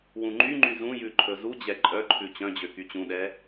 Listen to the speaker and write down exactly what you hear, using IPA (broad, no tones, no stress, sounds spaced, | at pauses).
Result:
w ũ ŋ͡ǃ y ŋ͡ǃ y z ũ j ʉ ǃʰ ɵ z u d͡ʑ ɛ ǃʼ œ ǃʰ ʉ t͡ɕ œ̃ d͡ʑ ø k y t͡ɕ ũ ɗ ɛ